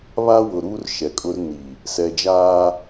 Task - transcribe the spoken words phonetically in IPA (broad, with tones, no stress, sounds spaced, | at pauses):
β aː˦ w ʊ˨ ɾ uː˦ r ʃ ɛ˨ kʼ ʊ˦ r n i˨ | s ɛ˨ d͡ʒ aː˦